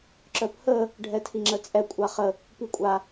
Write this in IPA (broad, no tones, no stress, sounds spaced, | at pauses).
ǁ œ p h ə | ɖʱ ɛ tʰ i ŋ͡ǁ ə t͡sʼ ɛ kʷʼ a χ ə | p i kʷʼ a